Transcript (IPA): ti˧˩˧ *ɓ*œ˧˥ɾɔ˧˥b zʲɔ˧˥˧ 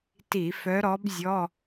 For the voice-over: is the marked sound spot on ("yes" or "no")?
no